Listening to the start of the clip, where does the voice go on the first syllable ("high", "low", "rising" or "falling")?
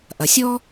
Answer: low